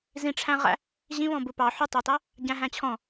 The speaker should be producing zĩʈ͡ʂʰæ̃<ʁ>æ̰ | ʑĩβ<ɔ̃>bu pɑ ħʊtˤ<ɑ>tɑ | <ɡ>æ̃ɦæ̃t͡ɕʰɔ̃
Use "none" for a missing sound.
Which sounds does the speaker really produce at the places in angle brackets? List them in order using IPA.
ʁ, ɔ̃, ɑ, ɟ

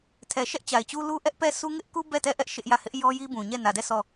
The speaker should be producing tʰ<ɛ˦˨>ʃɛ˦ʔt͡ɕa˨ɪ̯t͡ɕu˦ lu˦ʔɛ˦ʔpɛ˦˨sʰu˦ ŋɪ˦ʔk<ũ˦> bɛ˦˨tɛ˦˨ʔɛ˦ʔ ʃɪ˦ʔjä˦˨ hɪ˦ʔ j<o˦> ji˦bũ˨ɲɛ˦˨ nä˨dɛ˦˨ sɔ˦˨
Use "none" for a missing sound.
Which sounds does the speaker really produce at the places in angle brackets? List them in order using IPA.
ɛ˨, u˦, ɔ˦

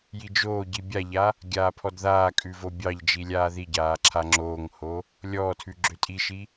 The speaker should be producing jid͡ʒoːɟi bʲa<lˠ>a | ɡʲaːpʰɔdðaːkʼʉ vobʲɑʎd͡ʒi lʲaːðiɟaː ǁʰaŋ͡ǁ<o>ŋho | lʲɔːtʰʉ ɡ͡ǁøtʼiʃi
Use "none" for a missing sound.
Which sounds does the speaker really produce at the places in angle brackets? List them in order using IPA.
ʎ, oː

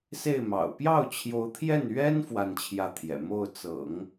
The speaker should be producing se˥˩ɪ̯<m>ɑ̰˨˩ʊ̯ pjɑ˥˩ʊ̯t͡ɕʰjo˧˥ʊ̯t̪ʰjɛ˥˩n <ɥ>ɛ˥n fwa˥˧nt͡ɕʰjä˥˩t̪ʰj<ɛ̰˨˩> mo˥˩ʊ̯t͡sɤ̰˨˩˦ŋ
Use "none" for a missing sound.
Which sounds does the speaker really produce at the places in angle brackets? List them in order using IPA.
m, ɥ, ɛ̰˨˩

